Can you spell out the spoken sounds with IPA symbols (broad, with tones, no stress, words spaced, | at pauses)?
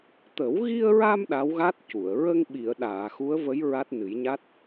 t̪ə˨˩˦wɣi˧ə̯ɹa˧m ɗa˧˥wɣa˦˥t̚ cu˨˩˨ə̯ ɹə˧ŋ ɓi˨˩˨ə̯ ɗaː˨˩˨xu˧˥ə̯və˧˥j ɹa˦˥t̚nɨ˨˩˦jɲa˦˥t̚